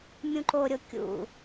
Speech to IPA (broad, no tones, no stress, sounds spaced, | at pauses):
mʲ ũ ǃ o ɾʲ o kʲ ṵ